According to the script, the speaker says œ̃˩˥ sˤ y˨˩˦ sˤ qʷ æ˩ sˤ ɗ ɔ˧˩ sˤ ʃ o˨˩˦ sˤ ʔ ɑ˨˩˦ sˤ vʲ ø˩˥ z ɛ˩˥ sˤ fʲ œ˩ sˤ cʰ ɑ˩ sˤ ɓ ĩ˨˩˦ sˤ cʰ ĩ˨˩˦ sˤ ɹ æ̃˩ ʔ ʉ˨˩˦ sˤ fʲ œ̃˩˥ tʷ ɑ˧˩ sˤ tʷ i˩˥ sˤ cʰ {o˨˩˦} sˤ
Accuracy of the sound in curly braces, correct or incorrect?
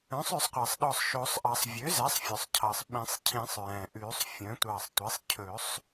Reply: incorrect